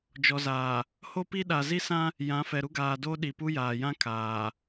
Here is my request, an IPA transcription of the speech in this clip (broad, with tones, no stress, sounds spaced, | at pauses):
d͡ʒ ɔ˨ z aː˨ | h o˦ p i˦ ɗ a˨ z i˦ s ã˦ | j ã˨˦ f ɛ˨ ɾ u˦ ɡ aː˨ d o˦ ɗ i˨ p u˦ j aː˨ j ã˦ kʰ aː˨